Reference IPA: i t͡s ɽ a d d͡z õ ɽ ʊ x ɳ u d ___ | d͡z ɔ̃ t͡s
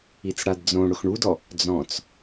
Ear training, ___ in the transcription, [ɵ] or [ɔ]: ɔ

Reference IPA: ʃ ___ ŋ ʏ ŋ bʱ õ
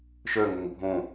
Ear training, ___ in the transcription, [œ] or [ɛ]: œ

